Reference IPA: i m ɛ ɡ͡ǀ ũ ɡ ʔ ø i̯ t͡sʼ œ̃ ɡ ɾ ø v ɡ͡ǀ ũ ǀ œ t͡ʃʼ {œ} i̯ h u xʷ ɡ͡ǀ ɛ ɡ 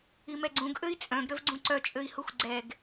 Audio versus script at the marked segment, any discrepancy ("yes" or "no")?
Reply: yes